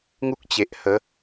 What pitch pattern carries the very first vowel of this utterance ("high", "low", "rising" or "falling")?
high